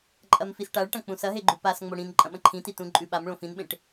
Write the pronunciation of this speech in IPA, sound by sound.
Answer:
ǃʼ ɐ m f i s ʈ a ɭ ʈ ɐ̃ k͡p ũ s ɐ ɦ e ɡ͡ǃ u p a s ŋ͡m o ɽ ĩ n ǃʼ ɐ̃ ɓ ɐ̃ ǃʰ ĩ t i t ũ ǃʼ ʉ ɓ a m ɭ õ f ĩ n ɓ ẽ ʈ

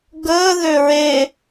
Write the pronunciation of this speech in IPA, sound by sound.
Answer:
ɡ əː ð ø ɹ e

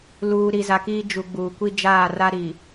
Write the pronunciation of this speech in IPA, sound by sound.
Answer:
l uː˨ ɾ i˨ z a˨ k iː˦ d͡ʒ u˨ ɡ͡b uː˨ kʷ i˦ d͡ʒ aː˦˨ r a˦ ɾ iː˨

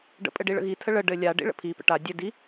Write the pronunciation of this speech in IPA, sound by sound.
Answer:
ɖ ə̰ pʼ ɘ ɖ i ɭ ə̰ ɣ i tʰ ə ɭ ə ɖ ɘ lʲ a ɖ ḭ ɭ ə̰ pʰ i p ə̰ ʈ a dʲ ɘ d i

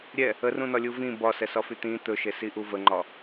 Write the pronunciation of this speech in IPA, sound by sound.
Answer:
ɾʲ ɛ | ə r ũ n ɒ lʲ u v ĩ b ɒ s ɛ s ɒ f y t̪ ĩ t̪ ɵ ʃ e s i ʔ u v ə ŋ͡ǃ ɒ

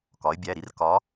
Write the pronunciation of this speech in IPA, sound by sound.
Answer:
k ɒ˩˧ ɪ̯ bʲ æ˩˧˩ ɾ i˥ r k ɒ˧˥

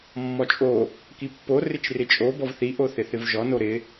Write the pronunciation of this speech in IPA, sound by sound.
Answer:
mː ɔ t͡ʃʼ o | k i pː o r ɪ t͡ʃ r ɪ t͡ʃʼ o b ɔ v θ i ʔ o θ ɪ θ ɪ v ʒ ɔ n o ɾ ɪ

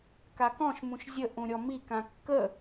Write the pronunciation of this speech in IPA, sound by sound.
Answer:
k a k ɔ̃ ʃ m ũ ʃ zʲ ə ʔ ũ ɾʲ ɔ m i k ã kː ə

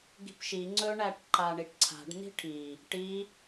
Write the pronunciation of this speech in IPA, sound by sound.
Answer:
ɡ i̤ p ʃ i ŋ͡ǀ ɵ ɳ æ ʈ ǃ a ɳ i ʈ ǀʰ a̤ ɖ n i̤ ʈʰ i | ʈ i

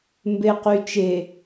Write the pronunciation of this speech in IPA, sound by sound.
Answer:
m b e q y t͡ʃ e

